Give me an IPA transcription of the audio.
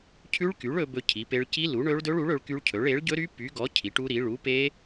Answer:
cʰ ʉ˦˥ ɭ k y˨˥ ɭ ɵ˦˥ b ɵ˦˥ cʰ i˨˥ p e˦˥ ɭ c i˦˥ l u˨˥ ɳ ɵ˦˥ ɭ d ɵ˦˥ ɭ u˨˥ ɭ ɵ˨˥ ɭ k y˦˥ ɭ cʰ ɵ˨˥ ɭ e˨˥ ɭ ɟ ɵ˦˥ ɾ y˦˥ p y˨˥ ɡ ɔ˨˥ cʰ i˨˥ ʈ u˦˥ ɾ i˨˥ ɭ u˨˥ p e˦˥

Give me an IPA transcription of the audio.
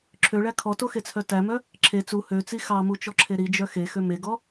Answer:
ǁʰ ø ɭ æ kʰ ɔ t o x e t͡sʰ œ t æ m œ | ǁʰ e t͡s u h ø t͡s i x ɑ m u t͡ʃ ɔ ǁʰ e ɾ i d͡ʒ œ x e x ø m e ɡ ɔ

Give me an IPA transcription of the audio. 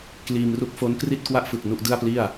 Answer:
k l iː˧ m r u˥˩ k̚ f o˦˥ n k r i˥˩ t̚ k w a˥˩ ʔ f ɯ˨˩ k̚ n u˥˩ ʔ d ɯ˥˩ a̯ p l i˥˩ a̯

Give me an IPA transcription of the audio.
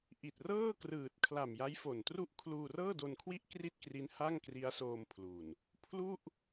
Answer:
ʔ i˨˩ t̚ r ɤː˥˩ k r ɯː˨˩ t̚ kʰ l a˨˩ m j a˦˥ j f o˨˩ n t r u˥˩ ʔ kʰ l uː˧ r ɤː˥˩ d o˧ n kʰ w i˥˩ ʔ k r i˥˩ t̚ k r i˦˥ n h a˥˩ ŋ k r i˦˥ a̯ s oː˧ m pʰ l u˨˩ n | pʰ l u˥˩ ʔ

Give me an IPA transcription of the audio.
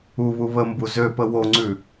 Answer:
u β u β ə m b u z ø p ə w o ŋ͡ǀ ʉ

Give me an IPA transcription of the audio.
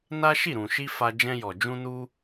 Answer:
n a˦ ʃ i˦˨ ɾ ũ˨ ʃ i˧ f a˧ d͡ʒ ɛ̃˧ j ɔ˨ d͡ʒ ũ˧ n u˧

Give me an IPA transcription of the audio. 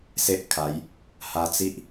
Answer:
s e˦ ʔ kʰ a˨˦ j | h a˧ t͡s i˦ ʔ

